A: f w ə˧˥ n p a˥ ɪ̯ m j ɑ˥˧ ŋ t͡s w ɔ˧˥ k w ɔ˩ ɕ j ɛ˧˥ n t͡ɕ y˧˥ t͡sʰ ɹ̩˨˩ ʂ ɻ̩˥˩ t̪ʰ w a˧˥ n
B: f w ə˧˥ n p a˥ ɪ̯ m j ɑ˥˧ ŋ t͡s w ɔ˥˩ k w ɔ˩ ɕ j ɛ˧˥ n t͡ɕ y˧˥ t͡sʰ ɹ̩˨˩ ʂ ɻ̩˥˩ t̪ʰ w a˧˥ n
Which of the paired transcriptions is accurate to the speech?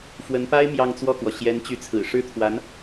B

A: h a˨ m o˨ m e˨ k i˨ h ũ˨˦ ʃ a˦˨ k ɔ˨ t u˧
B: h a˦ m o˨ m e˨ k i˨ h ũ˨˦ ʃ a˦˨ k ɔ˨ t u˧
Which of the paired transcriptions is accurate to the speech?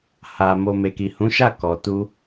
A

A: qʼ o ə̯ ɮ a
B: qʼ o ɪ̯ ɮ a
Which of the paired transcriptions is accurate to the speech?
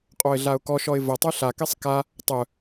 B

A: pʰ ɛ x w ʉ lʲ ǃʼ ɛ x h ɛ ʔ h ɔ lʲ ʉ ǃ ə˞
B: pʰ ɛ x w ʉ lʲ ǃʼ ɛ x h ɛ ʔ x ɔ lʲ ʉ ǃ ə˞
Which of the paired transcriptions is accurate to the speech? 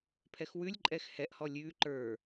A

